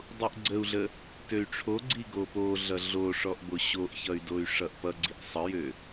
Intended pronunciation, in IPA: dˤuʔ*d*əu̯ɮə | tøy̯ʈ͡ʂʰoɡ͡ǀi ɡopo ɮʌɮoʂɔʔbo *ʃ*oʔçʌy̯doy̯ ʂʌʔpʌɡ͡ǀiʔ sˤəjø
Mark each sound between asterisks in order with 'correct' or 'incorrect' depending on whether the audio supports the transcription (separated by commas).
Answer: incorrect, incorrect